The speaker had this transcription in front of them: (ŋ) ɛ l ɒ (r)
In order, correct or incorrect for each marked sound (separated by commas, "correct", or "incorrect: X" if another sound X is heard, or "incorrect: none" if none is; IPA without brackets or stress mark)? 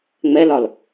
incorrect: ŋ͡m, incorrect: l